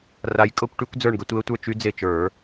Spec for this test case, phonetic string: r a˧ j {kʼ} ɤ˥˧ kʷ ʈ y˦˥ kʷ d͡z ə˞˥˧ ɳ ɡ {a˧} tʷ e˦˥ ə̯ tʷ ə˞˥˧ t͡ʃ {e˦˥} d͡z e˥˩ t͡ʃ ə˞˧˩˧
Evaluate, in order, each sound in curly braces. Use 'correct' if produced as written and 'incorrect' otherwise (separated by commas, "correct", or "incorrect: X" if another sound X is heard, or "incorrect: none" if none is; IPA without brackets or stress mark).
correct, incorrect: ə˧, incorrect: y˦˥